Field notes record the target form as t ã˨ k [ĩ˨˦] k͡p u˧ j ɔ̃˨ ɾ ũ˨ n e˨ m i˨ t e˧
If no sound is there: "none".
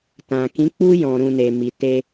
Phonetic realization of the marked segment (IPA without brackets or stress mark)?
ĩ˨˦